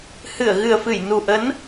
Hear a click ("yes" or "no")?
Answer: no